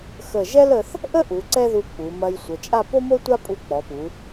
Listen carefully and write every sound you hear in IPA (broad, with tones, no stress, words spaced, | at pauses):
xə˧˩ʒɛ˥lə˧θ | ʔə˥ʔu˩˧ ǀɛ˥ðu˧k͡pu˩˧mɐ˧j sʷə˩˧t͡ʃʼa˥˧ po˥mo˥ tʷa˥ pʼu˧k͡pɔ˩˧pu˩˧